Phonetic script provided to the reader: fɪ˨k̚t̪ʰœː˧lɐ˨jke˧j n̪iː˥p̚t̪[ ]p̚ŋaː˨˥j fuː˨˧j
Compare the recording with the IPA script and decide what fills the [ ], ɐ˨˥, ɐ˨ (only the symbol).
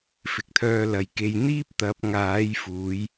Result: ɐ˨˥